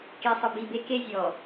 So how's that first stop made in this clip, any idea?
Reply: plain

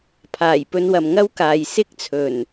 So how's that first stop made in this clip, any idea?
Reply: aspirated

